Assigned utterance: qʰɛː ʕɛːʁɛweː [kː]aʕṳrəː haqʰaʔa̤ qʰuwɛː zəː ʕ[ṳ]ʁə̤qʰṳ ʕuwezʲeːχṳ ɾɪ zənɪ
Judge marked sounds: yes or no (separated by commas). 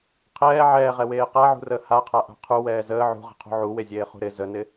no, yes